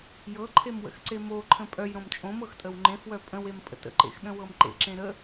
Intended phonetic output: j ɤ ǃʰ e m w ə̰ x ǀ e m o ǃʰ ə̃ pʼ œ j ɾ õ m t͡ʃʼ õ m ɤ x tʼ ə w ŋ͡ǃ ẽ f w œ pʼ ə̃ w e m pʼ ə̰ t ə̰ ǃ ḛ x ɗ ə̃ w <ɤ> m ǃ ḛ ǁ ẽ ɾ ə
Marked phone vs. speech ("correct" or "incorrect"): correct